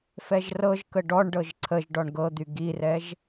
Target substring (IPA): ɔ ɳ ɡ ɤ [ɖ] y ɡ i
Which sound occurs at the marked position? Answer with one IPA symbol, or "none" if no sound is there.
d̪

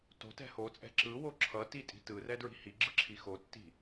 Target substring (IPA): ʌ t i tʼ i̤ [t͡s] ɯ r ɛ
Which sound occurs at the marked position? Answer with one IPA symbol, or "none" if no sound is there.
t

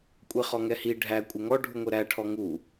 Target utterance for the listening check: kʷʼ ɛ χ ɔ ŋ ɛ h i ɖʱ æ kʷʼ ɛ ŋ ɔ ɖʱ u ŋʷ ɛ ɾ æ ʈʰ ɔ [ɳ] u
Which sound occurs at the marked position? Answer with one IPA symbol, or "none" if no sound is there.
ŋ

